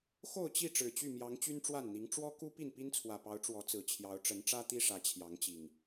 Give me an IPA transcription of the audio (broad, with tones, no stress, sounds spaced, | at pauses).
x o˥˨ ʊ̯ t͡ɕ i˥˨ ʈ͡ʂ ɻ̩˨˩ t͡ɕ y˥˨ m j ɑ˨˦ ŋ t͡ɕ y˦ n ʈ͡ʂ w a˥˨ n n̪ i˨˦ ŋ ʈ͡ʂ w ɔ˦ k u˦ p i˥˨ n p i˦ n t͡sʰ w ä˨˩ p ɑ˨˦ ʊ̯ ʈ͡ʂ w ɔ˨˦ t͡s ɹ̩˨˩ t͡ɕʰ j ɑ˨˦ ʊ̯ ʈ͡ʂ ə˨˦ n ʈ͡ʂ ä˦ t̪ i˦ ʂ ä˨˦ t͡ɕʰ j ɑ˨˦ ŋ t͡ɕ i˨˩ ŋ